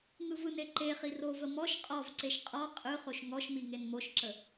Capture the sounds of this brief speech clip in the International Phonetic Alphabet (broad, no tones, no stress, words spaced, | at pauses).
ŋɯvɯne ǃe χirovə mɔʃ qʼɔvǀeʃ qʼɔ qʼɯχoʃ ŋɔʃmi ŋenmoʃǁə